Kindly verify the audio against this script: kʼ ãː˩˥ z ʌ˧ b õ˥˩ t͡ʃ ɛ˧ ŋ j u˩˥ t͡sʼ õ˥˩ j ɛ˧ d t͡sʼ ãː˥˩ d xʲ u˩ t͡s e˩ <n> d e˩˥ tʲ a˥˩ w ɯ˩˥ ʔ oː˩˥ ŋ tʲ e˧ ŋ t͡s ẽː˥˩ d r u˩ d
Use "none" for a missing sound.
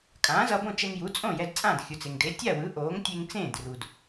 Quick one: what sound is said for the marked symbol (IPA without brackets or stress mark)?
ŋ